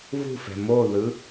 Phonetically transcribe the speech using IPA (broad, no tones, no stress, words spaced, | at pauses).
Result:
vṳfɛ̤ moðɯ